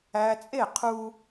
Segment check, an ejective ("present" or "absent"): present